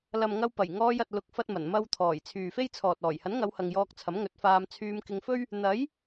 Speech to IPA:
l ɐ˨ m ŋ ɐ˧ w p ɐ˨˩ j ŋ ɔː˧ j ɐ˨ t̚ l ʊ˨˥ k̚ f ɐ˧ t̚ m ɐ˨˩ n m ɐ˧ w t̪ʰ ɔː˨˩ j t͡sʰ yː˨ f e˥ j t͡sʰ ɔː˨ t̚ ɔː˨˩ j h ɐ˨˥ n ŋ ɐ˨˧ w h ɐ˨ ŋ j ɔː˧ k̚ t͡sʰ ɐ˨˥ m ŋ ɵ˨˥ t̚ f aː˧ m t͡sʰ yː˧ m k ɪ˧ ŋ f ɵ˥ ɥ | n̪ ɐ˨˥ j

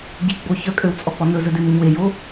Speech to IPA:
ɟ i ɡ͡b o ç œ kʼ ø w t͡sʼ ɔ k͡p ɔ n ɵ z ɵ d ʉ m e ɲ w e j o

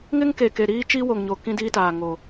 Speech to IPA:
ŋ ɪ˦ ŋ k e˨ k e˨ ɾ iː˦ t͡ʃ i˦ w o˨ ŋ ɲ o˨ k ĩ˦ d iː˦ t aː˨ ŋ o˨

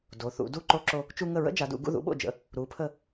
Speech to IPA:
d o˩˧ θ ṵ˩˧ d u˧˩ ǃ o˧ ǁ o˧ | t͡ʃ u˧ ŋ ə˧˩ ɹ ə̰˥ d͡ʒ a˩˧ d ṵ˩˧ ɡ ṵ˧ ð ṵ˩˧ ɓ o̰˧˩ d͡ʒ ə̰˩˧ | ɾ u˩˧ pʰ ə˧˩

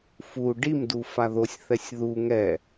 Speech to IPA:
f u ɖ i m d u f a ð o sʲ θ ɛ sʲ ð u ŋ ɛ

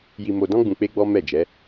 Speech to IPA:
j i˧ m o˧ d ɔ̃˦ ɡ͡b ũ˧ k͡p e˦ ɡ͡b ɔ˦ m ɛ˦˨ d͡ʒ ɛ˨˦

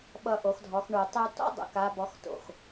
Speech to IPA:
ɓ ʌ˧ ʔ o˩˧ x dʱ ɔ˩˧ x ɳ u˩ tˤ u˧ t ɔ̰˥ dˤ ṵ˩ k a˧˥ b ɔ˧˥ x t o̰˩ x

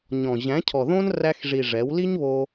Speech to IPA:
ɲ ɔ̃˨ ʑ æ̃˨˦ cʰ ɔ˨ ð õ˦ n r æ˧ x ʐ i˨ ʐ ɛ˨˦ w l i˦ ɲ β o˧

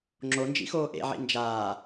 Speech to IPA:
ŋ͡ǁ o n d͡ʒ ḭ x oː ʔ ḛ ʕ ḭ n d͡ʒ aː

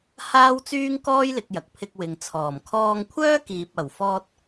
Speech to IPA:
h aː˥ w t͡s yː˥ ŋ k ɔː˥ j l ɪ˨˥ k̚ j ɐ˨ k̚ pʰ ɪ˧ k̚ w ɪ˨ ŋ t͡sʰ ɔː˨˩ m kʰ ɔː˧ ŋ kʷʰ œː˥ k iː˨ p̚ ɐ˨˩ w f ɔː˧ t̚

